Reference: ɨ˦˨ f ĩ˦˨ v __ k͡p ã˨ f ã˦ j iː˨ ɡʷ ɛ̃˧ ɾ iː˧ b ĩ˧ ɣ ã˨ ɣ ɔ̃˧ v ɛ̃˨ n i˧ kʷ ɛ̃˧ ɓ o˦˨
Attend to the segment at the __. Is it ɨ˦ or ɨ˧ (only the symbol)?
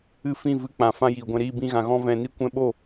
ɨ˧